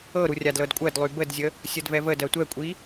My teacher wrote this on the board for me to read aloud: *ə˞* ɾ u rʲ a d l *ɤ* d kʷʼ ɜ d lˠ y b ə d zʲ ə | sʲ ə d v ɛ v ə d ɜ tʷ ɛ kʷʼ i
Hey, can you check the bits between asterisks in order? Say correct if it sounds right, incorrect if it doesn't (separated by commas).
incorrect, correct